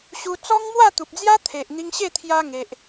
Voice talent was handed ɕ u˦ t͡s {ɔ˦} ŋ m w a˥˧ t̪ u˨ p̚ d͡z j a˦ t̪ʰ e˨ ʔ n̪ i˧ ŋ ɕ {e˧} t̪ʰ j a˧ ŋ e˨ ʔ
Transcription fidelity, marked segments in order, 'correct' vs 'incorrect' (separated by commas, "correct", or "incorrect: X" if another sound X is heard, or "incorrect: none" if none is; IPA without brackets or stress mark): correct, incorrect: e˥˧